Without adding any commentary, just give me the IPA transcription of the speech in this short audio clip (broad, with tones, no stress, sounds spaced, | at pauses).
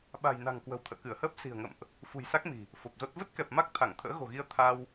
ɓ a̤˨˩ j n a̤˨˩ ŋ k w ə̤˨˩ w t̪ʰ ə̰ː˧˨ k ɨ˧˩ ə̯ h əː˦˥ p̚ s i̤˨˩ ə̯ ŋ ə̰˧˨ m ʔ | f ṳ˨˩ j s a˦˥ k̚ m i̤˨˩ | f o˨˩ p̚ z o˦˥ t̚ v ə˦˥ t̚ k ɛ˨˩ p̚ m a˦˥ k̚ t̪ʰ a˧˩ ŋ t̪ʰ ə̰ː˧˥ ɣ o̤˨˩ ɣ i˧ ə̯ t̪ʰ a˧ w